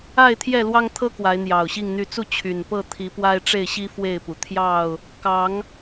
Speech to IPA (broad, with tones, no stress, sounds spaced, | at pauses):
a˥˨ ɪ̯ t̪ʰ j ɛ˥˨ l w ɑ˦ ŋ t̪ʰ ɤ˦ k w a˨˦ ɪ̯ n̪ j ɑ˨˩ ʊ̯ ɕ i˥˨ ŋ n̪ y˥˨ t͡s u˥˨ t͡ɕʰ y˨˩ n p ɤ˥˨ t̪ʰ i˨˦ p w a˦ ɪ̯ ʈ͡ʂ e˥˨ ɪ̯ ɕ i˦ f w e˥˨ ɪ̯ p u˩ t̪ʰ j ɑ˥˨ ʊ̯ | k ɑ˨˦ ŋ